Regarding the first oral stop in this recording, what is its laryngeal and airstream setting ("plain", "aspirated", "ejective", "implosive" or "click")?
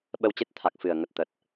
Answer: implosive